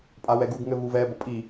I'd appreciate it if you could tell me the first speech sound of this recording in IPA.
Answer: pʼ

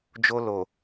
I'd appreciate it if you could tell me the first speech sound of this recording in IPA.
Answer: d͡ʒ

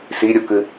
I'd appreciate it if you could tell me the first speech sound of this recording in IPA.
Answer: s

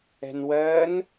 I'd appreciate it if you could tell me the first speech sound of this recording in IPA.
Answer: ɛ̤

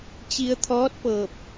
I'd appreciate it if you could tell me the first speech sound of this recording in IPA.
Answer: t͡ɕ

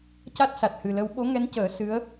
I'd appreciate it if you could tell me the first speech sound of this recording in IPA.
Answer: c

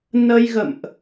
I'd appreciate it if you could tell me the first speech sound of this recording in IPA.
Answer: n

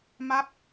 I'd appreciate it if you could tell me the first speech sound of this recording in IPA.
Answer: m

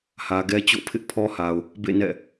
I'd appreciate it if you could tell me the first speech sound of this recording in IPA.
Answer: h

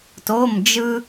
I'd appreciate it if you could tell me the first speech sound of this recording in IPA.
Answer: t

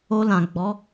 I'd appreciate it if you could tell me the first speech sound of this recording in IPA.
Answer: o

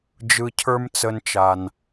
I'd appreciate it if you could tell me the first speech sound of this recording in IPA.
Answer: d͡ʒ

